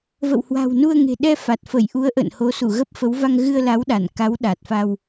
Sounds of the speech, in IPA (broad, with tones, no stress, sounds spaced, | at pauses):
v ə̰˧˨ w h w a̤˨˩ w n u˧ ə̯ ŋ e̤˨˩ ɗ ɛ˧ f a˨˩ t̚ f ə˧˩ j ʔ u˨˦ ə̯ ʔ ə̰˧˨ n h o˨˦ s u˧˩ ɣ ə˦˥ p̚ f ə˨˦ w v a˧ ŋ ɣ ɨ˧ ə̯ l a˨˦ w ɗ a˧˩ n k a˨˦ w ɗ a˨˩ t̚ f a˧ w